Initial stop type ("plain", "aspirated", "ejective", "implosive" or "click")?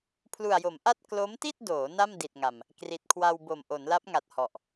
aspirated